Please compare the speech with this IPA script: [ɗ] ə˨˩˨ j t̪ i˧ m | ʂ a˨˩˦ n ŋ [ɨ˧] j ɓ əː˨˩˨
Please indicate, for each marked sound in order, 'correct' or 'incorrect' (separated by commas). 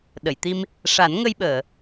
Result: correct, incorrect